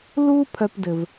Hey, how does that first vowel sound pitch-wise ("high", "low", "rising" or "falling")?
high